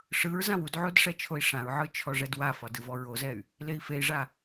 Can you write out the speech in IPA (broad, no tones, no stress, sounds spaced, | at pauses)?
ʂ ɯ ɹ z ã w u d ʕ o d ʂ ɛ t͡ʃʰ o i̯ ʂ ã ɹ ʕ ɯ t͡ʃʰ ɔ ʐ ɛ d w a f ɒ d ɯ v ɔ ɹ o z ɛ y̯ | l e i̯ f e i̯ ʐ a